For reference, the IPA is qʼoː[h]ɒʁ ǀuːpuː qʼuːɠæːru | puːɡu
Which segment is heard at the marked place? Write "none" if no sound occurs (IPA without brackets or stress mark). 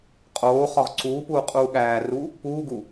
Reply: χ